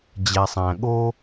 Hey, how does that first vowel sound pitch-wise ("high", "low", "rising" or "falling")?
low